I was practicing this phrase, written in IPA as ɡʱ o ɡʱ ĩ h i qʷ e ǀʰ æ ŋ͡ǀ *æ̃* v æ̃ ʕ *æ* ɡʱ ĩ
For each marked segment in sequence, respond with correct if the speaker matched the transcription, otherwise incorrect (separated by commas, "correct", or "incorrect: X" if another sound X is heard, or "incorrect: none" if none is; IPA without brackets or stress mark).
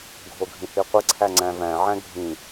correct, incorrect: æ̃